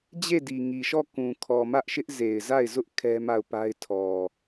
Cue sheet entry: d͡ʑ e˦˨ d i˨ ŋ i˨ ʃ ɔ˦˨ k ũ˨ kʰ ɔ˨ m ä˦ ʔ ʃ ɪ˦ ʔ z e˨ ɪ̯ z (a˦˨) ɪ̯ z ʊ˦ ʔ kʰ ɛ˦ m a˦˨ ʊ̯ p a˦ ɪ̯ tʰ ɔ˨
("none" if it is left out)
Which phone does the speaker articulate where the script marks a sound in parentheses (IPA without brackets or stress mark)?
a˦˨